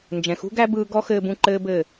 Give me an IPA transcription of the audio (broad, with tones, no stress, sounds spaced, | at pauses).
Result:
n d͡ʒ ɛ̃˨ x ṳ˦ ɡ æ˦ b ɯː˧ ɡ ɔ˦ x ɘː˧ b ũ˧ ǃ ɘː˦ b ɘ˦˨